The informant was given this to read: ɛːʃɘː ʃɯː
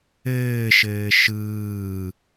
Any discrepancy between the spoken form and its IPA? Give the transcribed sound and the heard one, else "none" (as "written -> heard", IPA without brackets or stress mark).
ɛː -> ɘː